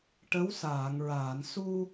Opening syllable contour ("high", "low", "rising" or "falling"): rising